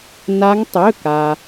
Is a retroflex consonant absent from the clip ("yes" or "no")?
yes